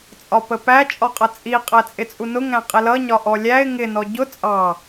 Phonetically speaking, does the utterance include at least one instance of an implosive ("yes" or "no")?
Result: no